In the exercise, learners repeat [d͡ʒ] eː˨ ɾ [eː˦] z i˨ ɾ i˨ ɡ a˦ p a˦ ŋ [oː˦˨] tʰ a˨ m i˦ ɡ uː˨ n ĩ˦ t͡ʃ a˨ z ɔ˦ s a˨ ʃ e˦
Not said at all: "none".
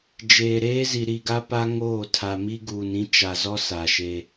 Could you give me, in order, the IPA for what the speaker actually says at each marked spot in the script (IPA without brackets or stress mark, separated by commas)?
d͡ʒ, eː˦, oː˦˨